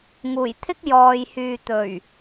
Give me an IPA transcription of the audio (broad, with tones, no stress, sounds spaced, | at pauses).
ŋ uː˨˩ j t̪ʰ ɪ˥ k̚ j ɔː˨ j h yː˨ t̪ ɵ˨˩ ɥ